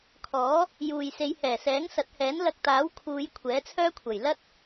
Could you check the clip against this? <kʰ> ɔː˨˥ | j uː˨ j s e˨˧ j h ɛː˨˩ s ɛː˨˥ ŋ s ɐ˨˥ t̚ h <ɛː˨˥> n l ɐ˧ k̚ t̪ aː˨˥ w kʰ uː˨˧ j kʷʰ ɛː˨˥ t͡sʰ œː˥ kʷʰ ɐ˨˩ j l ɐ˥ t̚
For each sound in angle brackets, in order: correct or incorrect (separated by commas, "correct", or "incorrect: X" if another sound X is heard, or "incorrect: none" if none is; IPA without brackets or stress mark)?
correct, correct